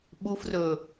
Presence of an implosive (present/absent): present